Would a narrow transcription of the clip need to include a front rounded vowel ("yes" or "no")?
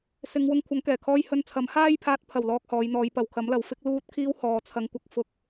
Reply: no